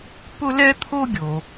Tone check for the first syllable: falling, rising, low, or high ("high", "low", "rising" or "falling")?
high